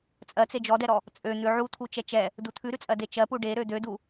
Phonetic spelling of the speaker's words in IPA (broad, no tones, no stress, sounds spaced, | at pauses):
t͡sʼ ɜ t͡s e d͡ʒ ɔ d ɛ ɾ ɔ | t͡sʼ ø n̪ ʉ ʕ u t̪ʰ u t͡ʃ ɛ t͡ʃ ɛ | d u t̪ʰ ʉ ɾ ʉ t͡sʼ ɜ d e t͡ʃ ɜ p u ɖ e ɾ ø d̪ ø d u